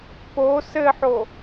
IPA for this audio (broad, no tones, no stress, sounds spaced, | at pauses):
p o s ɘ ħ o